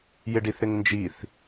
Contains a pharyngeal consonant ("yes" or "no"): no